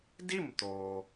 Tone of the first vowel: falling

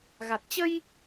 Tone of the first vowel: low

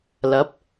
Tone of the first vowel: rising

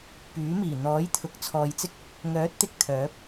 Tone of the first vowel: rising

